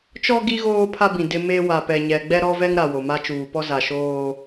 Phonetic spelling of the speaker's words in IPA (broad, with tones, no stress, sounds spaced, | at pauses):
t͡ʃ ɔ˦ ɡ i˦ ɣ oː˦ pʰ a˦ b ĩ˨ d ɪ˦ m e˦ w a˨ p ɛ˨ ɲ ɛ˨ ɡ͡b ɛ˦ ɾ ɔ˦ v ɛ˦ ŋ ɾ a˨ w o˨ m a˦ t͡ʃ uː˨ p ɔ˦ z a˨ ʃ oː˦